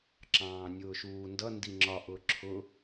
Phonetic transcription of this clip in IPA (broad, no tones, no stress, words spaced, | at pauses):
ǁɑ̃ːnʲʊːʃuːndʌ ndiŋ͡ǁɒ ʔʊǁʰʊ